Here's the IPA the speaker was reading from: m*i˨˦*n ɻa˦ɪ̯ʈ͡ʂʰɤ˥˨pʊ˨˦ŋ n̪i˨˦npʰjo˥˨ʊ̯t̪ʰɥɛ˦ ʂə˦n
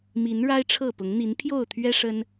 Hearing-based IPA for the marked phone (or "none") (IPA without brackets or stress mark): i˨˦